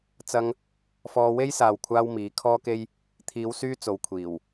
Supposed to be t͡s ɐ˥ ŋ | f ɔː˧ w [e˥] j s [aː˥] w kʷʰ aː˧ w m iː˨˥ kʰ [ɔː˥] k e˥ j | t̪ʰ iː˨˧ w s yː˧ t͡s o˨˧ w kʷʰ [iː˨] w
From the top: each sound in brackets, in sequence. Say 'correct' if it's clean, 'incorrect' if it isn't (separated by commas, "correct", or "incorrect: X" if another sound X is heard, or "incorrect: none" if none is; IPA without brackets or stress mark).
correct, incorrect: aː˨, correct, incorrect: iː˨˩